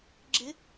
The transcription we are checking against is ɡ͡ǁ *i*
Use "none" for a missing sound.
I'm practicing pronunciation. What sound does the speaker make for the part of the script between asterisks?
ɪ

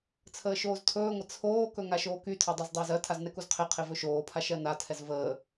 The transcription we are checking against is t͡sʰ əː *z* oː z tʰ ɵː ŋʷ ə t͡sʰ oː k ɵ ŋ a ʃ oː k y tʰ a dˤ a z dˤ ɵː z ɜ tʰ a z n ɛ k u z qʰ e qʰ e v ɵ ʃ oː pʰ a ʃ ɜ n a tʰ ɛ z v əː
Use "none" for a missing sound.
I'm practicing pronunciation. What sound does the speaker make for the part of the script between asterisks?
ʃ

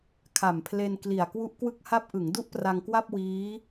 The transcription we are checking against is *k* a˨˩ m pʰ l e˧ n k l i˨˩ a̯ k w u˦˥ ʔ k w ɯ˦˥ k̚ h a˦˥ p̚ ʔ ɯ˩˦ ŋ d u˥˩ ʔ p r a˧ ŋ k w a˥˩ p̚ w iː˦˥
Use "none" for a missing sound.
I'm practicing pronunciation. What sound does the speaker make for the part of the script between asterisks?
kʰ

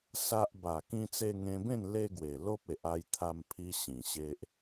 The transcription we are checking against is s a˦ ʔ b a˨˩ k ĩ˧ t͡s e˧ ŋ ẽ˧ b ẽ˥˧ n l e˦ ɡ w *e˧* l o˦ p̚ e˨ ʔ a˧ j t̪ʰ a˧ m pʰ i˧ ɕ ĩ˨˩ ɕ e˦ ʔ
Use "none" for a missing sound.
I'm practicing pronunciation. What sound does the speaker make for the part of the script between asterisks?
e˨˩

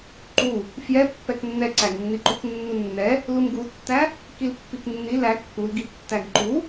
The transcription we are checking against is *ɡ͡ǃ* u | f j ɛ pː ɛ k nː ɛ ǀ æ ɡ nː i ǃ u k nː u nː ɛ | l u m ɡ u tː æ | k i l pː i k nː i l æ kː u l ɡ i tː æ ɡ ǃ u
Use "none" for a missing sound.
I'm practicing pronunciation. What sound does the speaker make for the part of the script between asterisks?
ǃ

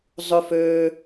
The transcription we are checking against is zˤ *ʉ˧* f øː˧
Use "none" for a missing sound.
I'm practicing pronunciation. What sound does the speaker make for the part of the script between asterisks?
ʉ˧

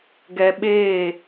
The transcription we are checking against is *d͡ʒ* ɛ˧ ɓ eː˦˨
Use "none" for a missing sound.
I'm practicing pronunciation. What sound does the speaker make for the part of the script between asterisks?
ɡ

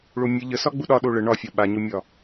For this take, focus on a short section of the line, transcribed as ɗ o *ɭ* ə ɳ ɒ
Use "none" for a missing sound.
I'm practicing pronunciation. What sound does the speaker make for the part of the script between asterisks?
ɭ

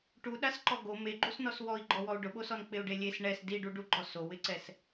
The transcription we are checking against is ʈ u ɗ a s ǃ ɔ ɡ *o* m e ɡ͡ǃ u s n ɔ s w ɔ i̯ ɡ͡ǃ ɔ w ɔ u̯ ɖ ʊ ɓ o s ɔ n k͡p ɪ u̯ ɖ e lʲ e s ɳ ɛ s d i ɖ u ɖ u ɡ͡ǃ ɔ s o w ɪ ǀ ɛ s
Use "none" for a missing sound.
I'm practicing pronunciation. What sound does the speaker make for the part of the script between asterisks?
o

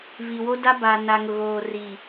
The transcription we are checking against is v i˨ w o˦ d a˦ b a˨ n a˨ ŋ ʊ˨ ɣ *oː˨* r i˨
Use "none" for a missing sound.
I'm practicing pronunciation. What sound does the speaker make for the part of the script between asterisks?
oː˨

